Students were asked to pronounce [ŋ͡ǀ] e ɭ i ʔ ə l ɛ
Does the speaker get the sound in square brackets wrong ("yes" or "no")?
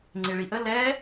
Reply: no